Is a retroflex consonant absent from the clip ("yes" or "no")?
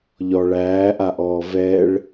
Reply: no